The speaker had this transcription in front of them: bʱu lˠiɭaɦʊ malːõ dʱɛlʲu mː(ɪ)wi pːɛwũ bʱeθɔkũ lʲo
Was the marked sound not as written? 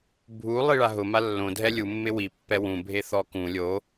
no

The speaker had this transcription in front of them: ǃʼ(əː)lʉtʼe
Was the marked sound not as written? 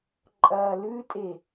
yes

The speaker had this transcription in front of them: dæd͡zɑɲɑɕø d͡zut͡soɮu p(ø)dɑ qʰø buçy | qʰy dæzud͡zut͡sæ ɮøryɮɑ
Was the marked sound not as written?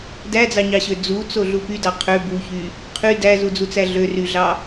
yes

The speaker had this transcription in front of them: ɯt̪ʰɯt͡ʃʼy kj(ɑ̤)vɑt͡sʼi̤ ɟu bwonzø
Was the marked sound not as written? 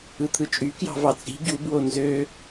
no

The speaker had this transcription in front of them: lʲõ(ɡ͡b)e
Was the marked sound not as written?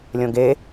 yes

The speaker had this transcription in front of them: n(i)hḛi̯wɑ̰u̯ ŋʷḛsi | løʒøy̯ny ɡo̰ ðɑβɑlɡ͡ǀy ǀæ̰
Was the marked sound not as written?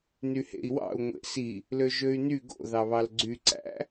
yes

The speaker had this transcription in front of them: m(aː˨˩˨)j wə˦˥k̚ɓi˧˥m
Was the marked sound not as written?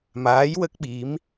yes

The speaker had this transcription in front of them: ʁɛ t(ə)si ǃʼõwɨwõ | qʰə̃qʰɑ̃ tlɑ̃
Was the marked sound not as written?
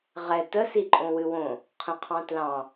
no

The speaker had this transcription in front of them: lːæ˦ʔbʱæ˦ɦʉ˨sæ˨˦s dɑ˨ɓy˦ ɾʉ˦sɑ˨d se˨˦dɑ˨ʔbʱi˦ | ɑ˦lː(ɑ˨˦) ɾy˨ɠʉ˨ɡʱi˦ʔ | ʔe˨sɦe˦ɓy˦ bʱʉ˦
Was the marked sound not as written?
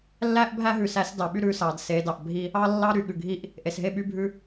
yes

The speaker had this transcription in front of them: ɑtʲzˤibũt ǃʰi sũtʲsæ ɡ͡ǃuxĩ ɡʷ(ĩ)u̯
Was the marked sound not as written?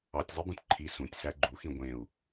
yes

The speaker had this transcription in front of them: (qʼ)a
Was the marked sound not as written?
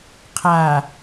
yes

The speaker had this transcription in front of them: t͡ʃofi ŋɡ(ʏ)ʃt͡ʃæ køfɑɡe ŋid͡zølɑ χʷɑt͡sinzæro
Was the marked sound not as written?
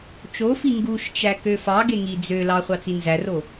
yes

